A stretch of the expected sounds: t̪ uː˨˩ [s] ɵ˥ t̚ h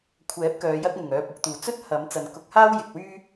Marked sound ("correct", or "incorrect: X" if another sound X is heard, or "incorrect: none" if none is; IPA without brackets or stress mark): incorrect: t͡s